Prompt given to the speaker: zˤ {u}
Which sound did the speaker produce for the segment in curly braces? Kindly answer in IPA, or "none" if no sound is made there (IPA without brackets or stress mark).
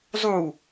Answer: u